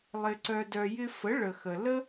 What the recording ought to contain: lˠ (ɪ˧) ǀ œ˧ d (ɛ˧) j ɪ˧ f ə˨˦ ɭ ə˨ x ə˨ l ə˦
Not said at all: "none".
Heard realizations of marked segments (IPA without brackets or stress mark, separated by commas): ɪ˧, œ˧